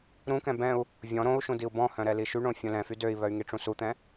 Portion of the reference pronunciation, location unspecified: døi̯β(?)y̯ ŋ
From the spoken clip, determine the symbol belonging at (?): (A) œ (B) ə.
A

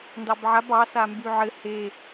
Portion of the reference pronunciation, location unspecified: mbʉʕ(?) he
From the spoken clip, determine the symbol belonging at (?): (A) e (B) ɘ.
B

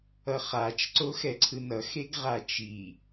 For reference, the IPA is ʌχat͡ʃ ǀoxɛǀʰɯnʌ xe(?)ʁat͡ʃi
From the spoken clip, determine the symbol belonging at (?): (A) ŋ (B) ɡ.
B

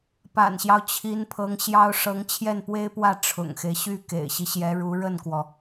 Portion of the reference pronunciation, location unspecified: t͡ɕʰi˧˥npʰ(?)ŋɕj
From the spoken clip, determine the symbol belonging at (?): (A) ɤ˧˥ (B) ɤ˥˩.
A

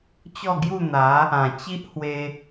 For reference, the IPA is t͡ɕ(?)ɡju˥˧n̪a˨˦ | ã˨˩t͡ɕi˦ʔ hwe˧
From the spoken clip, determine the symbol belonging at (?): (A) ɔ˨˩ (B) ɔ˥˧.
B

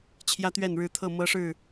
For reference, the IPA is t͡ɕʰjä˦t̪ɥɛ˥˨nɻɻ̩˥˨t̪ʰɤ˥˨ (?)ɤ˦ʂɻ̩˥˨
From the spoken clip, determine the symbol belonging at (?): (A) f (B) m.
B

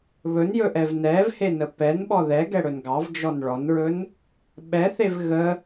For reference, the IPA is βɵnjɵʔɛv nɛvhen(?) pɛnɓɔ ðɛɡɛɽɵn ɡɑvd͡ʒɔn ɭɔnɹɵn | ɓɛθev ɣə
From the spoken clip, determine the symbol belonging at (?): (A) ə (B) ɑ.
A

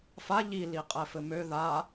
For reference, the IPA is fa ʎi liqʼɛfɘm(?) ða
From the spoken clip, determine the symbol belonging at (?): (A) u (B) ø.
B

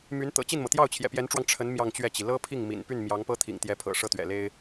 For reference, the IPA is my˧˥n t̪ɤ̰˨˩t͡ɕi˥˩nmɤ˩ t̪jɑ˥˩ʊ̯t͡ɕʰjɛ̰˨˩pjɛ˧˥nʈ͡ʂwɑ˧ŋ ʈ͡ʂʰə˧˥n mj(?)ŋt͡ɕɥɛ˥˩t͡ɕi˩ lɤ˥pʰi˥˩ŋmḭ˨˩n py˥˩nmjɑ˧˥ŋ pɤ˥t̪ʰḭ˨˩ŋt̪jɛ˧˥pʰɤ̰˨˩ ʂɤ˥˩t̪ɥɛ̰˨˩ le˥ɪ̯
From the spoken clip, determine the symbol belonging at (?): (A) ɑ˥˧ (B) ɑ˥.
A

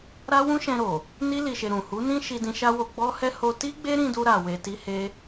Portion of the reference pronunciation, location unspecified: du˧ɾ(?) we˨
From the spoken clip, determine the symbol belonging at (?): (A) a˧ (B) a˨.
B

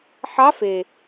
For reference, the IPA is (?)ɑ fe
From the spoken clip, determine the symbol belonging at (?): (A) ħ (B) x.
A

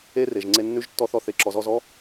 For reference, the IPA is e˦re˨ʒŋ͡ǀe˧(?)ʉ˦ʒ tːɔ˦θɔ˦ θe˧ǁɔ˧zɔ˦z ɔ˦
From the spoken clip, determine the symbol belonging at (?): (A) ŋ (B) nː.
B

